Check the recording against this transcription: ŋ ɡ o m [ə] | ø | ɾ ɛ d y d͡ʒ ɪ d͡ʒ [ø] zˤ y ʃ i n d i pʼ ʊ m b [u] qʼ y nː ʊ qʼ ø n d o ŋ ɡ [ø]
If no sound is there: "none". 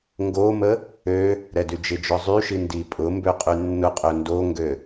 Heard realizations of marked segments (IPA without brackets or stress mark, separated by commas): ə, œ, ø, ø